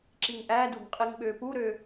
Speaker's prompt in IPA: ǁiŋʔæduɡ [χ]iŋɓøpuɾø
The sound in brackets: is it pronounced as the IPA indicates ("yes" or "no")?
no